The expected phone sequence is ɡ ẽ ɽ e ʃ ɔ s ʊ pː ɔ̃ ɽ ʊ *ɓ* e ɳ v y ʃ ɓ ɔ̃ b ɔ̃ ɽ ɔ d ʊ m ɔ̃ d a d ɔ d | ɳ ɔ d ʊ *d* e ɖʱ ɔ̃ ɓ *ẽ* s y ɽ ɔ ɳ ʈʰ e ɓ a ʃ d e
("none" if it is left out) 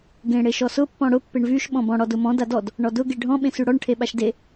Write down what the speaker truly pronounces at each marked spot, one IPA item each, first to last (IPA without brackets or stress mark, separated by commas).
pː, ɡ, ẽ